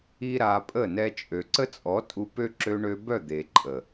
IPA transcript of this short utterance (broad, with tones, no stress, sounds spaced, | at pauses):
i˦ ɾ a˧ pʼ ə˦˨ n ɛ˧ t͡ʃʼ ø˨ ǀ ə˦ t͡sʼ ɔ˨˦ tʼ u˧ p ø˦ ǁ ø˧ ɳ ø˧ b œ˦˨ d̪ e˨ ǃʼ ə˨